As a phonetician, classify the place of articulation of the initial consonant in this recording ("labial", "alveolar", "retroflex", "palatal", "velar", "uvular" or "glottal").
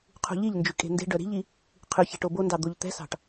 uvular